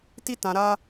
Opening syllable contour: high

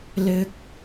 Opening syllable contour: high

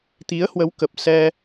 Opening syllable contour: rising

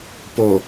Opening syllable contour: low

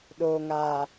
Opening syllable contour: low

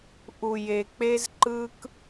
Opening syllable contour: low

